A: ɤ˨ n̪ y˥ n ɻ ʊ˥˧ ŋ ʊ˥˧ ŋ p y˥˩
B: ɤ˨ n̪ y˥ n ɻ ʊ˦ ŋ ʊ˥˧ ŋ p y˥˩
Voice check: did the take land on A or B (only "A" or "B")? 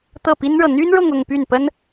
A